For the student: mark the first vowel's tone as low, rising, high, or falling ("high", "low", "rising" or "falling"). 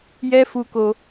high